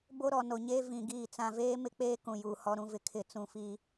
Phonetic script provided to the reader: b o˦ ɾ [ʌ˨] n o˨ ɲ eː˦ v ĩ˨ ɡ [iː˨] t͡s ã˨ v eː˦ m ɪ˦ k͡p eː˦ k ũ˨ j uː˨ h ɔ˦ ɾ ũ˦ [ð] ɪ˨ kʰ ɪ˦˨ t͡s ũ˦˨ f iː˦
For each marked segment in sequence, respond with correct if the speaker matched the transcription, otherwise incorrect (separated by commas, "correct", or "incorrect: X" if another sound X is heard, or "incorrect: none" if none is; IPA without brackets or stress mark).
incorrect: ɔ˨, incorrect: iː˦˨, incorrect: v